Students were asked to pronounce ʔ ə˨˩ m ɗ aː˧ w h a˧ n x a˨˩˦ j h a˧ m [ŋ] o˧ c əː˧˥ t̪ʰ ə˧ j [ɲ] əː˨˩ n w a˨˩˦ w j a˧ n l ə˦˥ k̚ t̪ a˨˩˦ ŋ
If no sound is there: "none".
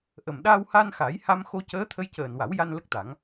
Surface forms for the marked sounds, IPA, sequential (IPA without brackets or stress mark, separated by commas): x, c